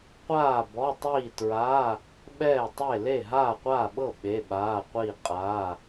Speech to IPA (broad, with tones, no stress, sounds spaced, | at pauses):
qʷ aː˥˨ b ɔ˧˥˧ tˤ iː˥˨ t ɹ aː˧˥˧ | ɓ ɛː˥˨ tˤ e˥˨ l e˥˨ ɦ aː˥˨ qʷ aː˥˨ ɓ ɤ˥˨ ɓ e˧˥˧ ɓ aː˧˥˧ qʷ iː˥˨ qʼ aː˧˥˧